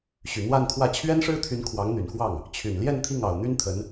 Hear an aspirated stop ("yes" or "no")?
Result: yes